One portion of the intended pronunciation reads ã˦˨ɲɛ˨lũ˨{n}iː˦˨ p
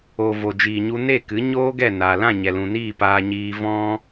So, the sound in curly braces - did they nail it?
yes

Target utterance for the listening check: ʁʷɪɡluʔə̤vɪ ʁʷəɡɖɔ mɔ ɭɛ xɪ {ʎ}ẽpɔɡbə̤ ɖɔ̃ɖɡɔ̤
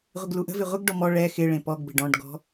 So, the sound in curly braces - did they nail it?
no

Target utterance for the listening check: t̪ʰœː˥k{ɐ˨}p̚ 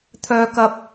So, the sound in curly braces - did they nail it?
no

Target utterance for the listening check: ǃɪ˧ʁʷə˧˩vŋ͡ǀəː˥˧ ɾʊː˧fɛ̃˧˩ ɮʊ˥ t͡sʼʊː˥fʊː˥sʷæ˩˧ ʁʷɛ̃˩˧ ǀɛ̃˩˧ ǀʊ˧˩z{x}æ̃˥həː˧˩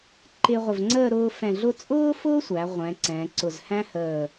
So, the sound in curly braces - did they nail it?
no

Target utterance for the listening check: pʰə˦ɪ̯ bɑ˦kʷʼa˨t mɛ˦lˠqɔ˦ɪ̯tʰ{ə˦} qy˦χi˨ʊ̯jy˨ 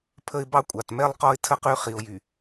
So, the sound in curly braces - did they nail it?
yes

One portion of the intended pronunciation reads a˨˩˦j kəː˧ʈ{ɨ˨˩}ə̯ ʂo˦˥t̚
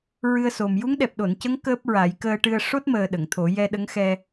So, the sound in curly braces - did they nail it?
no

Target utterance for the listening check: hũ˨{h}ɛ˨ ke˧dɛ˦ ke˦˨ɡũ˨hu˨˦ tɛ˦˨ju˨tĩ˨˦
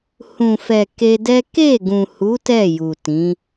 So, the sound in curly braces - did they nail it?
no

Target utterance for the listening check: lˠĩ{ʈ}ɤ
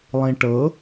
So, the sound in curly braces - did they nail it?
yes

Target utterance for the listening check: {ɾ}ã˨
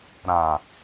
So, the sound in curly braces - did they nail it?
yes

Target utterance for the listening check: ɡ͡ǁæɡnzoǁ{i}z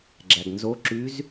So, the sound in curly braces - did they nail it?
no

